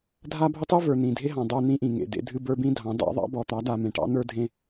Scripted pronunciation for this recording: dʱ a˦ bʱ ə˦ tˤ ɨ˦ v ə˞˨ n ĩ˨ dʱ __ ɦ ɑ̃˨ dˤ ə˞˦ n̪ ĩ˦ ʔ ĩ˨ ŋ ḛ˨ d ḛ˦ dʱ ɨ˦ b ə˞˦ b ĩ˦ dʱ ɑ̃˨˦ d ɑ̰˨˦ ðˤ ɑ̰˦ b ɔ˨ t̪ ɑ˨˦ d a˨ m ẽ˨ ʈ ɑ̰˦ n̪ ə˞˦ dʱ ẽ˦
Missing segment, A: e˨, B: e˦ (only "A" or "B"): B